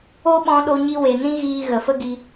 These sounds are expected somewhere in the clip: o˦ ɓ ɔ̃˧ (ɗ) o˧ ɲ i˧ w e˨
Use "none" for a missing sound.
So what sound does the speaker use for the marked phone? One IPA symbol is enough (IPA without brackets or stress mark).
ɗ